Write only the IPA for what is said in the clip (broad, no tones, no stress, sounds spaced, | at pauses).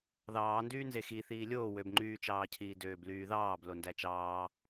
ð ɑː n d yː n z e x i θ iː lʲ oː w ø b ŋ͡ǃ yː t͡ʃ ɑː cʰ iː d øː b l yː ð ɑː b l o n d æ t͡ʃ ɑː